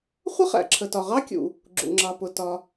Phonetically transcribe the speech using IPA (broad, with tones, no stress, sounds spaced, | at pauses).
χʷ ə˥ χ æ̰˩ ǁʰ ə˩ t ɒ˩ ʁ ɑ˥ kʲ ṵ˩ | ɡ͡ǁ ṵ˩ ŋ͡ǁ ɑ˩ p ʊ˩ t ɒ˩